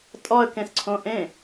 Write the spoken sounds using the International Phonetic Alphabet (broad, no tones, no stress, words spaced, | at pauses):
tʼɔə̯kẽsǀʰõ ʔẽ